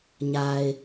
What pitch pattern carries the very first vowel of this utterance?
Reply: low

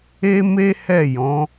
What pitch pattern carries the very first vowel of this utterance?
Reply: high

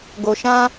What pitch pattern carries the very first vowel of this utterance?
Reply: low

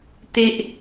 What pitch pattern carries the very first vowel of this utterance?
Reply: high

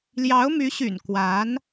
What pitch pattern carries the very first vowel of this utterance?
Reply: rising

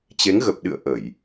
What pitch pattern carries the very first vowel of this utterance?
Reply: rising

